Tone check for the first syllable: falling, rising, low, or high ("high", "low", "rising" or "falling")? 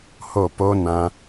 falling